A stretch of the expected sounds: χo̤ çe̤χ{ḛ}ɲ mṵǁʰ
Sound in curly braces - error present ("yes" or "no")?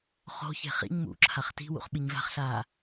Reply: yes